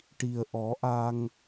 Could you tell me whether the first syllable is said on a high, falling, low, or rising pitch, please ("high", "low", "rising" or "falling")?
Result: low